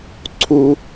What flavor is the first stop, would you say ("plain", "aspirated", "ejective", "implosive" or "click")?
click